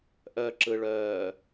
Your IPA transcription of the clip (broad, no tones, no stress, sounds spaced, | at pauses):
ʔ œ ǁ ɯ ɭ œː